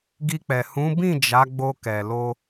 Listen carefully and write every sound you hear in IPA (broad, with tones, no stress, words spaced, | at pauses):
ɡi˧k͡pɛ˨ hũ˨˦bĩ˦˨ d͡ʒa˨˦ɡ͡bo˧ kɛ˨lo˧